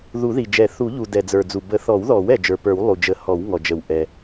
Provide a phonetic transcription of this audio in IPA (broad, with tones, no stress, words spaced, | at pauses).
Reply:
ðu˨˩˦ði˩d͡ʒɛ˨˩˦ θu˨˩˦ʎu˩ dɛ˩d͡zə˞˩d͡zu˩ bə˨˩˦θɔ˨˩˦wðɔ˨˩˦w ɛ˩d͡ʒə˞˩pə˞˨˩˦w lˠu˩d͡ʒə˨˩˦ hɔ˨˩˦wŋɔ˩ d͡ʒə˩wʔɛ˩